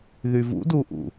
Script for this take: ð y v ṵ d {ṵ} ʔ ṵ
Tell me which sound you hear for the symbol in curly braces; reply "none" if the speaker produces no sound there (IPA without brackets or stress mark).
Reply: u